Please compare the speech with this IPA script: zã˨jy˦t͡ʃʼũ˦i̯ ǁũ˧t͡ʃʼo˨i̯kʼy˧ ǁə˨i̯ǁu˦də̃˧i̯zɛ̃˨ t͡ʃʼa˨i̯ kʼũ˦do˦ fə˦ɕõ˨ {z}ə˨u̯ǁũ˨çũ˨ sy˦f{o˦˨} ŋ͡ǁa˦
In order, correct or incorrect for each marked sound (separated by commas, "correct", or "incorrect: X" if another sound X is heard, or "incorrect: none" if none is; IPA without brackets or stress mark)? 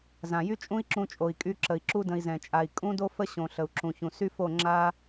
incorrect: ɬ, correct